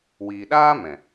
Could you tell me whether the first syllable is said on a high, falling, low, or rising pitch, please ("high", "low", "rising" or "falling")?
low